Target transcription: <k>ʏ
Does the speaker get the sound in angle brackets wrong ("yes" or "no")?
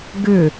yes